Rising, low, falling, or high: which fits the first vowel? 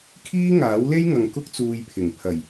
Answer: high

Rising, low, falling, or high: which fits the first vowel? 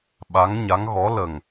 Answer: rising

